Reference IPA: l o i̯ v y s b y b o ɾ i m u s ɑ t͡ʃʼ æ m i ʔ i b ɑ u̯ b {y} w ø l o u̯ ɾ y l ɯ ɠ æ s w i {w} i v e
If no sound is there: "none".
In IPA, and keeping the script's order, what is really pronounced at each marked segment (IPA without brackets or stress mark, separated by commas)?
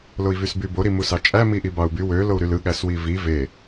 y, v